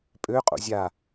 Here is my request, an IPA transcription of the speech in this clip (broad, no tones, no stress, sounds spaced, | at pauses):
pʼ ø qʼ o̰ zʲ a